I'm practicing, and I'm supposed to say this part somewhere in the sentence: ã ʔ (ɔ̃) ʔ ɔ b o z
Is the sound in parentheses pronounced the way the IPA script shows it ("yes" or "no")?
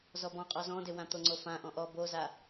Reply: yes